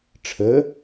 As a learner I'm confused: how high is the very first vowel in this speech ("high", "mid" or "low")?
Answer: mid